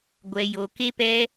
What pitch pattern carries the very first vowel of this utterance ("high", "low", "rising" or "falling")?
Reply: low